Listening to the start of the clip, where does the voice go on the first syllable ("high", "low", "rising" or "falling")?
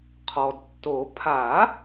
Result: low